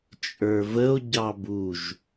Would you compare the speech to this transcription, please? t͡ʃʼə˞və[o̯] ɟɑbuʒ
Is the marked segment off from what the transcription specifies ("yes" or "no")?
no